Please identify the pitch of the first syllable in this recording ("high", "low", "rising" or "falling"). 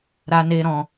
high